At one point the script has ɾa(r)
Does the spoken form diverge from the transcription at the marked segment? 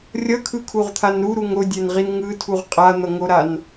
yes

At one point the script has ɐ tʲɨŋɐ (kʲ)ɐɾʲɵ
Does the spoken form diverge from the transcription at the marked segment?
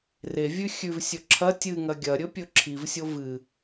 yes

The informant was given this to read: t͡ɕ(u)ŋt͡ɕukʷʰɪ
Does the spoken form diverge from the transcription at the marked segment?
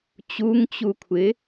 no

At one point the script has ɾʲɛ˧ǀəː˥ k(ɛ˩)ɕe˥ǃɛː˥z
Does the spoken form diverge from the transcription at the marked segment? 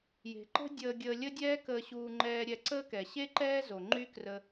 no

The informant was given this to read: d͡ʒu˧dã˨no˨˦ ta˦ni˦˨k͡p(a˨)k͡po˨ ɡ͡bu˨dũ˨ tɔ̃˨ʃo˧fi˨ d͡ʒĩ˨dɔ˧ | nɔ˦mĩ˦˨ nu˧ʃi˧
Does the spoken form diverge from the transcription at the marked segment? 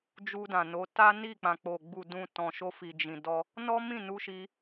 yes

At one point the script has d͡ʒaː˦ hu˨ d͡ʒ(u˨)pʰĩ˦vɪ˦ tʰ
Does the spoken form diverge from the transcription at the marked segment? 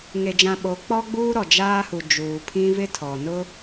yes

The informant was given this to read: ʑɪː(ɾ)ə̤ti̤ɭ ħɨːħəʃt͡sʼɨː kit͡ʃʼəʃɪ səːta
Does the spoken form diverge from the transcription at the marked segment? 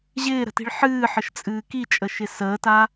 no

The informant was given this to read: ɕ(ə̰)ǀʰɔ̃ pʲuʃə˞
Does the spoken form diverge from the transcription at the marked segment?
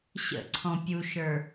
no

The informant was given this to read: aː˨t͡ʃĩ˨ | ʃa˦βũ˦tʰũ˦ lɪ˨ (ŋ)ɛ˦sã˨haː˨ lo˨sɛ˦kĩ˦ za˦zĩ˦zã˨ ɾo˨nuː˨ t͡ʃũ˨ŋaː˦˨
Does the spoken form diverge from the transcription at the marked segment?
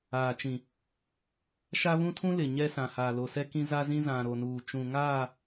yes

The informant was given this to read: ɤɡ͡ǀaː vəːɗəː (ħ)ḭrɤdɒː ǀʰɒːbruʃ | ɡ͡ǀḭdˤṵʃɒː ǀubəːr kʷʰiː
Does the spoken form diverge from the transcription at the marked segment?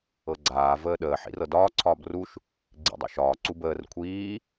no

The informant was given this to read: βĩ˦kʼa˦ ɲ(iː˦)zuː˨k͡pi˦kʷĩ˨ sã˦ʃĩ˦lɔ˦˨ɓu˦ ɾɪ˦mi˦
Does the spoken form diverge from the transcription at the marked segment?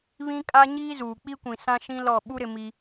no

